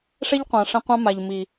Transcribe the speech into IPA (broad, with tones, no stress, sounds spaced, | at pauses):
ʂ ɛ˦ ʎ qʷ ã˨ ʂ ɛ̃˧ qʷ ã˦ m a˨ ʎ m i˨